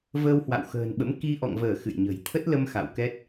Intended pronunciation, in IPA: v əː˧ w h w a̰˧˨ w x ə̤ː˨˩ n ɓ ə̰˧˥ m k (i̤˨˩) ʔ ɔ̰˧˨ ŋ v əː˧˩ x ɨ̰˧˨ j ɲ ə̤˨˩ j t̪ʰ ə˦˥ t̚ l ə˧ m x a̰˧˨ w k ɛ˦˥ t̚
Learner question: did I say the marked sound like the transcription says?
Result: no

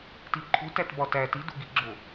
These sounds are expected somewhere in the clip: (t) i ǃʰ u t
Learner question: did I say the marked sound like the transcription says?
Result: yes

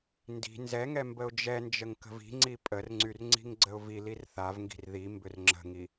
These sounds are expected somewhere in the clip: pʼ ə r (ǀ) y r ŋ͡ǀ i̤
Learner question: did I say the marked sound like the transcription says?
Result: no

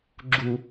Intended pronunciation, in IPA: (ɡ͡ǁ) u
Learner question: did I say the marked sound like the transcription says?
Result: yes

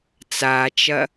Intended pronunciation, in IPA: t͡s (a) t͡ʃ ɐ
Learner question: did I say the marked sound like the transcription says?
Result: yes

